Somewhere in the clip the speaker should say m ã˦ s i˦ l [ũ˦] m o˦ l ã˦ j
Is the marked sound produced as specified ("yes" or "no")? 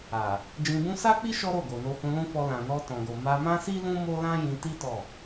yes